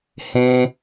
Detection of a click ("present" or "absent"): absent